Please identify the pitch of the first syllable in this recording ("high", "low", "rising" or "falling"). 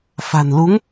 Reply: low